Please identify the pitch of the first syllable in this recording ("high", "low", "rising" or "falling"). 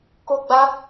high